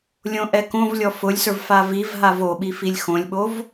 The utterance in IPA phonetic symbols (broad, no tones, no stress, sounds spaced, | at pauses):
lʲ õ ʔ ɛ k õ v lʲ ɔ f ʊ lʲ s ə˞ v f a v i v ɦ a v o ɓ i f i lʲ x õ lʲ ɓ o v